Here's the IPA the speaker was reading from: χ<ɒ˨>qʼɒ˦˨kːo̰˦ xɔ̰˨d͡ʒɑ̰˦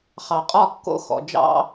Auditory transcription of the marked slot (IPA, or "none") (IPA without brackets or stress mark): ɑ˨